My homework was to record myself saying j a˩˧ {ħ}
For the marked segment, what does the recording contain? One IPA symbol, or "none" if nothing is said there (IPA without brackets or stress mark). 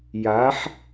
ħ